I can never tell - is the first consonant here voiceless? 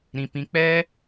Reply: no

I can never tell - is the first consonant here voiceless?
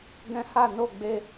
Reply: no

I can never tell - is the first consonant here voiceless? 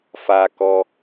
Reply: yes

